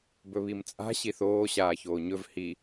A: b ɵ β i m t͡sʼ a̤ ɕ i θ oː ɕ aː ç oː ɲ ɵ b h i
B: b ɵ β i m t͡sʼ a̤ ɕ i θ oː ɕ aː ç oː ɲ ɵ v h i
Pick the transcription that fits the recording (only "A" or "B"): B